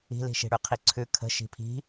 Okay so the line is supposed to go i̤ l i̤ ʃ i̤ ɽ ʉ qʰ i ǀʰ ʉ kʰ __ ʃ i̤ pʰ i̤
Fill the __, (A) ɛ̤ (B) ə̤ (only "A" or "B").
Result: B